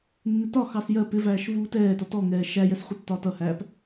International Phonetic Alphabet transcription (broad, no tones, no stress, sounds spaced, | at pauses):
nː ɪ t ɒ x ɑ s j ɜ p ɪ v æː ʃ v uː t ɛː t ɒ t ɔ ŋ ɛː ʃ æ j ɛ s χʷ ɪ tː ɒː t ʌ h æː p